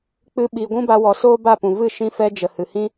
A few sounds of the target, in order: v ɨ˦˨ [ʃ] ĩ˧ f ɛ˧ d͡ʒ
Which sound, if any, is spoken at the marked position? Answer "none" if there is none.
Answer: ʃ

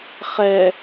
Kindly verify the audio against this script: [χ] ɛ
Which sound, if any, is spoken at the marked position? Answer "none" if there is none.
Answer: χ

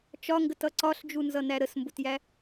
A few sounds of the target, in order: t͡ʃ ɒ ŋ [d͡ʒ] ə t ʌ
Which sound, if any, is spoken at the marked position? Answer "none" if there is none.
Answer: ɡ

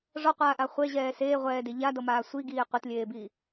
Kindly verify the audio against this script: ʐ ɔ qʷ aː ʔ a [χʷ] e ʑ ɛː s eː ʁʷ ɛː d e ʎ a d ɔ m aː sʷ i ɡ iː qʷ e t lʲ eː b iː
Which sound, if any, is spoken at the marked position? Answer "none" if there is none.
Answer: χʷ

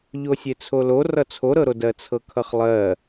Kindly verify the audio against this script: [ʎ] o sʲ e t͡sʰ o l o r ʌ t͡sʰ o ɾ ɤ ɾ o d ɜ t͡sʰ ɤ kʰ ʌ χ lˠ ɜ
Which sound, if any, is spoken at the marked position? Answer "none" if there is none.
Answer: ʎ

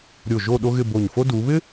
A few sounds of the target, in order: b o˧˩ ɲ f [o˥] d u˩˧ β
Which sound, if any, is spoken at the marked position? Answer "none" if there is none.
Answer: o˥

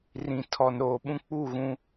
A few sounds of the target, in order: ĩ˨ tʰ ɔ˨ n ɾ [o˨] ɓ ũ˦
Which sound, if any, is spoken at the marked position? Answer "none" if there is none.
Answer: oː˨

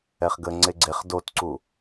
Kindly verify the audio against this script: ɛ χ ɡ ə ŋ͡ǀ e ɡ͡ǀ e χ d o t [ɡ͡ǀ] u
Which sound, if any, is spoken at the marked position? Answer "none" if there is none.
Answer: ǀ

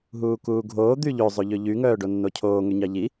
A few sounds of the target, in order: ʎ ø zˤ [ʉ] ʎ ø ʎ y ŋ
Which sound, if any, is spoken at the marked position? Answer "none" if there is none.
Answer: ʉ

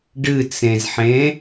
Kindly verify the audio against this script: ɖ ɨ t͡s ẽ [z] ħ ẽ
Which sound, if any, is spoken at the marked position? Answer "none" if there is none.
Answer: z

